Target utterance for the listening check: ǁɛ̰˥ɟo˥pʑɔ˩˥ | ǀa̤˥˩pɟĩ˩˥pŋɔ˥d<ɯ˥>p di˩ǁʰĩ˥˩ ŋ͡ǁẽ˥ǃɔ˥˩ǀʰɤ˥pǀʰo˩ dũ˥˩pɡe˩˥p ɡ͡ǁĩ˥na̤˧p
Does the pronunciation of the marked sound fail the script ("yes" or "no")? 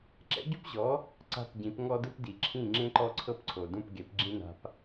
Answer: no